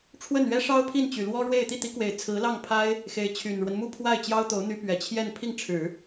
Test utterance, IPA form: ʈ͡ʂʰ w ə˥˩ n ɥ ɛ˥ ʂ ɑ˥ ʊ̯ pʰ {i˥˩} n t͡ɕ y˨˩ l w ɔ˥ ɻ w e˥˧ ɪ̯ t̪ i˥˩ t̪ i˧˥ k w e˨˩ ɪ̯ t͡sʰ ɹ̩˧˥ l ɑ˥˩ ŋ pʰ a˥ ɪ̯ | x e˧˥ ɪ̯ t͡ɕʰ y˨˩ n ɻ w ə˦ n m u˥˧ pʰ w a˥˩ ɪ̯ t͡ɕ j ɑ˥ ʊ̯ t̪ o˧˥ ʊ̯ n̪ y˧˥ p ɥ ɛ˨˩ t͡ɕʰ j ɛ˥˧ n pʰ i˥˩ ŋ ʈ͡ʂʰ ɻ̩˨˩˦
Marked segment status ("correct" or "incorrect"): correct